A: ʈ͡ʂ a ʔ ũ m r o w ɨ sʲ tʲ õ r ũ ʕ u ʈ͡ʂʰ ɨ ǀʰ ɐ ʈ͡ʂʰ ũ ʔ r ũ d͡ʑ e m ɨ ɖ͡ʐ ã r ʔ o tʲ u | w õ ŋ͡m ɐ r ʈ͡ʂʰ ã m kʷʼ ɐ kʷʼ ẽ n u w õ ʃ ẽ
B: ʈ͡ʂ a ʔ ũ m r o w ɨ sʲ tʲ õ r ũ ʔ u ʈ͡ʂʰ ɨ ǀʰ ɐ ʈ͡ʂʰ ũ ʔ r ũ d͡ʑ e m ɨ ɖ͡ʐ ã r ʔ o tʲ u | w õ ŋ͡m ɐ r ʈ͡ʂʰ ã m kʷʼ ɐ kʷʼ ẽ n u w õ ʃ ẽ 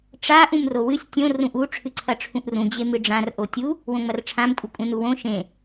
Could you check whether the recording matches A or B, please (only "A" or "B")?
B